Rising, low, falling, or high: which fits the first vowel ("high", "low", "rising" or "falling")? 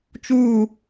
falling